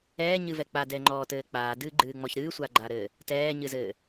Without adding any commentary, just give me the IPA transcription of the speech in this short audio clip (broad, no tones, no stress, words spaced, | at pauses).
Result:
ɛːɲɨvɛ k͡padɛːŋ͡ǃɔːtɘː k͡paːdɨːɡ͡ǃɨːŋ͡mɔç ɾɨːsʷaɡ͡ǃaɾɘː | tɛːɲɨzɘː